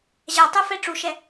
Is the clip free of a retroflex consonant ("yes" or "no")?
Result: no